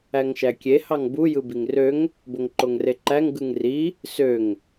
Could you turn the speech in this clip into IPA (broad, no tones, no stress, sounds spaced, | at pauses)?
æ ŋ ʃ æ kʲ e h ɑ ŋ b u j ɯ b i ŋ r ø ŋ | b o ŋ ǃ o ŋ r e ǃ æ ŋ ɡ ɯ ŋ r i | s ø ŋ